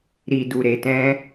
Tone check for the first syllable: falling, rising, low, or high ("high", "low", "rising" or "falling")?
low